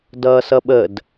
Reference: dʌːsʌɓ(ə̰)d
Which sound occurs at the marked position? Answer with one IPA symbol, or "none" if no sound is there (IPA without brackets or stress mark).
ə